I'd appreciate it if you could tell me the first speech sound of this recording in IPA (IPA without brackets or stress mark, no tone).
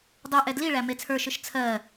dˤ